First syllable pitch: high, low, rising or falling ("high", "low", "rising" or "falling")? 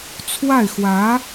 falling